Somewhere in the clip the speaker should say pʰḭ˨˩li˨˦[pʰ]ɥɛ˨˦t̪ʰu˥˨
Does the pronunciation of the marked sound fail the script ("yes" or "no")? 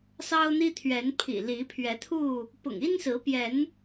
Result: no